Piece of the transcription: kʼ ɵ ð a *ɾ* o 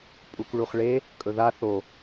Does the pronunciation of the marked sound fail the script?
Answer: yes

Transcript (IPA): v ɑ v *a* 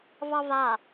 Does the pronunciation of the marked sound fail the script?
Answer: no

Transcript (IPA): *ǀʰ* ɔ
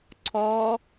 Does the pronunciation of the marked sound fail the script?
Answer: no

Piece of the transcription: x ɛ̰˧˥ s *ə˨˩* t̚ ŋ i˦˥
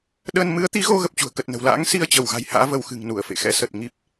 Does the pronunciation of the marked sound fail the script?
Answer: no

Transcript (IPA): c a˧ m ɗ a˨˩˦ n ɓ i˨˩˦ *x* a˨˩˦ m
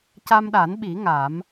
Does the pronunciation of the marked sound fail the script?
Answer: yes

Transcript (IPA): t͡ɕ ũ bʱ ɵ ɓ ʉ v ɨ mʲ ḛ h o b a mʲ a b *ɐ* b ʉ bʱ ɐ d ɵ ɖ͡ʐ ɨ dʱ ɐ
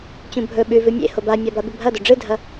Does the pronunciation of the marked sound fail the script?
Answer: yes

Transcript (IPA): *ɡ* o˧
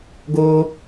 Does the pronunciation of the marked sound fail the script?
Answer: no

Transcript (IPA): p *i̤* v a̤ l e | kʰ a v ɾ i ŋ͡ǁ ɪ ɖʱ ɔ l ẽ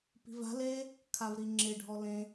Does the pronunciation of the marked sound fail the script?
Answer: no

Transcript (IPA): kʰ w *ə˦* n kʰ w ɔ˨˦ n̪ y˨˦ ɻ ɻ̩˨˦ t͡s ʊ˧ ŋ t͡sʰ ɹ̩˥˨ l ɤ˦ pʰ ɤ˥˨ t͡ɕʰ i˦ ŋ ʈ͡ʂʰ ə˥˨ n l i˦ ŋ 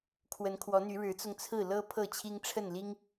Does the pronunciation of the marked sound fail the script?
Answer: yes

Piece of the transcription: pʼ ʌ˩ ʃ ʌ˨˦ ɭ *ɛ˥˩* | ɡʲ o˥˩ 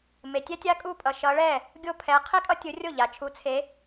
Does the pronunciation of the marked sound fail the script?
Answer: no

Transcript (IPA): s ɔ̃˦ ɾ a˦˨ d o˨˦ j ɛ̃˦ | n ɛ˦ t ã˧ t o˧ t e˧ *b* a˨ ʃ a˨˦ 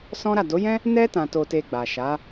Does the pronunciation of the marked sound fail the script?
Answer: yes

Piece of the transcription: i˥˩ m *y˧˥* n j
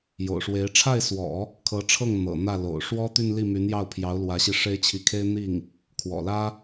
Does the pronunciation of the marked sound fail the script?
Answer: no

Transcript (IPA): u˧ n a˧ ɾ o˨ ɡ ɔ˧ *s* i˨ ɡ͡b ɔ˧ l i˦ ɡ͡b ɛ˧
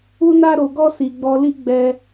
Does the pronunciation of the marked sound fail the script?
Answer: no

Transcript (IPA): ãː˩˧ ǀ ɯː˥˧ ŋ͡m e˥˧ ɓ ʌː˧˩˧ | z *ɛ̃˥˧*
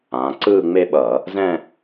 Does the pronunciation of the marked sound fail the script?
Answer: no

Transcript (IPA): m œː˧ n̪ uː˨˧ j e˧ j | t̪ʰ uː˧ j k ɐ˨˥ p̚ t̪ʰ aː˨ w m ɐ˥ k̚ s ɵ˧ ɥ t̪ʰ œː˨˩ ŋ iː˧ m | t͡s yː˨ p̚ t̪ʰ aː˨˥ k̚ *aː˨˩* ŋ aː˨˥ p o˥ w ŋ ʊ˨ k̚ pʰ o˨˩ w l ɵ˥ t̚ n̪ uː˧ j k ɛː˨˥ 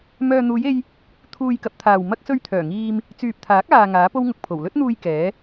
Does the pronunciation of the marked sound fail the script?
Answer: yes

